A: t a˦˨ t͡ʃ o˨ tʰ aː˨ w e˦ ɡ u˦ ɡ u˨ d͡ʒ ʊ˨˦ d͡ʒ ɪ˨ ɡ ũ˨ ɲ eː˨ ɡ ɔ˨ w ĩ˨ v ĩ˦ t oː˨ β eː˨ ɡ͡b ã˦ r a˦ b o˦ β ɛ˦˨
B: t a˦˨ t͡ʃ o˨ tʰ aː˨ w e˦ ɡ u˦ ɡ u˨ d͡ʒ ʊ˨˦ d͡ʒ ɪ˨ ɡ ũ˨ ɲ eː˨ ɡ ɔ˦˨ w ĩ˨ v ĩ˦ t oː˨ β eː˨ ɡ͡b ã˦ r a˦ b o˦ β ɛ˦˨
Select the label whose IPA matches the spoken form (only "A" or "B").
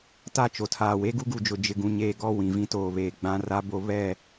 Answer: B